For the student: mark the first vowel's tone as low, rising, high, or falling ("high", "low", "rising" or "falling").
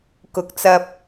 low